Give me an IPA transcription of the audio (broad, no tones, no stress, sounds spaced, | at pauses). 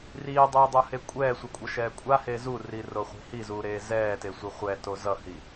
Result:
r iː dˤ iː dˤ u h e kʷʼ ɛː sʷ ʌ kʷʼ ʌ ʃ ɛː kʷʼ a h e z u r i r o χʷ i̤ h i z uː ɾ eː z ɛː t e sʷ i χʷ ɛ t o z ʌ h i